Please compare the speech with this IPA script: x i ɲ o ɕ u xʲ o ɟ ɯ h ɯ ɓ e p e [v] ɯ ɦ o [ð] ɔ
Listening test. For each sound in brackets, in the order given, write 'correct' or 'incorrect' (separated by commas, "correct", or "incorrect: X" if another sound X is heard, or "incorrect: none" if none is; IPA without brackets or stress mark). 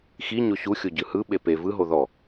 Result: correct, correct